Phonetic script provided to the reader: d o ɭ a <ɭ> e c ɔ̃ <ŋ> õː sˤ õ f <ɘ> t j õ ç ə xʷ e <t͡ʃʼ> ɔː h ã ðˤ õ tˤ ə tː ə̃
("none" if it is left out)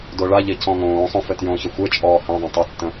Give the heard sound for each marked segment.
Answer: ʎ, ŋ, ɘ, t͡ʃʼ

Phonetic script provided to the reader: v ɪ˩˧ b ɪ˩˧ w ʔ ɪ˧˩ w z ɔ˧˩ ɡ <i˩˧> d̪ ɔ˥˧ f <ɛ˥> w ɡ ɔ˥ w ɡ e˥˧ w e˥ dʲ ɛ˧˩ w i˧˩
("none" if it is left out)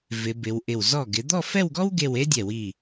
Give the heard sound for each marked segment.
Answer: ɪ˩˧, ɛ˥˧

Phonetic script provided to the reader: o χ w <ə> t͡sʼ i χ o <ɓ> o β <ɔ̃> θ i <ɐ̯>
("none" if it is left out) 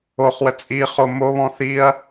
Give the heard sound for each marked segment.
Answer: ə, m, ɔ̃, ɐ̯

